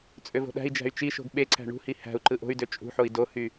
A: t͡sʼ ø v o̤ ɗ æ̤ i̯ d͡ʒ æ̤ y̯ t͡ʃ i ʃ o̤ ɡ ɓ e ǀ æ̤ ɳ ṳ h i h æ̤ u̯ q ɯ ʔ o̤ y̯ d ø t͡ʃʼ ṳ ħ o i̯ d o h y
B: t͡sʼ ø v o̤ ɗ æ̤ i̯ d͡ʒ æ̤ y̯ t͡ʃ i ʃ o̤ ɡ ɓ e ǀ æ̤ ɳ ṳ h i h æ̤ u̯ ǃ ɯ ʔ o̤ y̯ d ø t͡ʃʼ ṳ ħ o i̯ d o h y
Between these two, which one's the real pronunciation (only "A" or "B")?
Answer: B